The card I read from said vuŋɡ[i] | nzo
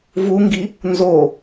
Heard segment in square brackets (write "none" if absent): i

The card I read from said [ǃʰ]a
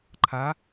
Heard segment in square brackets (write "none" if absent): ǃʰ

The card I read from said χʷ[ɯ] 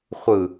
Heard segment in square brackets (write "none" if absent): ɯ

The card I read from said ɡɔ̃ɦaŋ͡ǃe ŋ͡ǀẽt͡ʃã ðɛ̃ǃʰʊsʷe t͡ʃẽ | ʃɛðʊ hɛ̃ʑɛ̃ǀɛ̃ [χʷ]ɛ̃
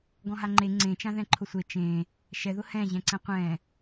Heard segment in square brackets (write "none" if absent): qʷ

